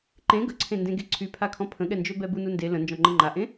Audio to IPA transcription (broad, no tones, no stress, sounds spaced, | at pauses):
ǃ ẽ ɡ ə ǀʰ ẽ n d ẽ ɡ e ǀʰ y pʰ a kʰ ɔ̃ pʰ ə̃ ɠ ɛ n d͡ʒ ø b ɛ b u n u n d e l ə̃ n d͡ʒ ɔ̃ ŋ͡ǃ ə ŋ͡ǃ a ʔ ẽ